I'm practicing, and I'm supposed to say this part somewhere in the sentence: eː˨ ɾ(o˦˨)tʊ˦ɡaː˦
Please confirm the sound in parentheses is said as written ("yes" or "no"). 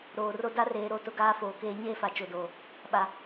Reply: yes